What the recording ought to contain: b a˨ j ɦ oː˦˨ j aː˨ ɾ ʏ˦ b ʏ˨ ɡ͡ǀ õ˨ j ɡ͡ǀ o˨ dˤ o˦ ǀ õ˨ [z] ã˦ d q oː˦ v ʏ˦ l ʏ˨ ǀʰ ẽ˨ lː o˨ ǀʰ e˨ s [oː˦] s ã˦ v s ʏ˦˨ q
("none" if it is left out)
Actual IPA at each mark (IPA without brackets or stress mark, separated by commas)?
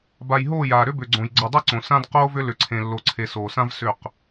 s, oː˨